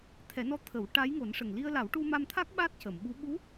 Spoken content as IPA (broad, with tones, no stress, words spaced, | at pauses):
t̪ʰɛ˨˩˦nɔ˧˥ t̪ʰə˨˩˦w ʈa˧˥jŋo˨˩˦n ʂə˨˩ŋli˧ə̯la˨˩˦w ʈu˧ma˧mt̪ʰa˦˥k̚ ɓa˦˥t̚cə˨˩˨mɓu˧˥ ɓu˧˥